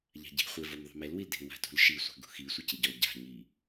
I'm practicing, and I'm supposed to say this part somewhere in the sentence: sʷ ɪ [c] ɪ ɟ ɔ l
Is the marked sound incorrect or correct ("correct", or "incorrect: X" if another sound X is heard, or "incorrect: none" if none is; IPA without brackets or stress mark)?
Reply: correct